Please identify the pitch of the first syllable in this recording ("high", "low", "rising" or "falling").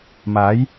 rising